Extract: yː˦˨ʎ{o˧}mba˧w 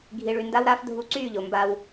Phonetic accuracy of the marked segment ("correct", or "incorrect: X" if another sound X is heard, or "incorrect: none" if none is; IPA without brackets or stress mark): incorrect: o˨